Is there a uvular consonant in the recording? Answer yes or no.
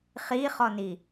yes